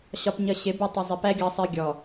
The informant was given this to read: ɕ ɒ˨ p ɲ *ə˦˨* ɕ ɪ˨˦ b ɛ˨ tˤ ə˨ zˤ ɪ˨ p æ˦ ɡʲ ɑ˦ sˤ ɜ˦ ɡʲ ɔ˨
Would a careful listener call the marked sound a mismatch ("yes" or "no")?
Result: yes